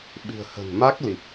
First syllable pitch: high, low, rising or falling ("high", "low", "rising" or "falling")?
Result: low